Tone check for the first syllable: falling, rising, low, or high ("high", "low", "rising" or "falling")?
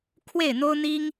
falling